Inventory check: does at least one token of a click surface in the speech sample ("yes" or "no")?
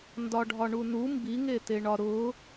no